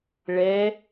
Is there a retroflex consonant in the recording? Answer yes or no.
yes